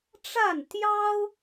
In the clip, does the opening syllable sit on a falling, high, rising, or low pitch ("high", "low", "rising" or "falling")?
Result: falling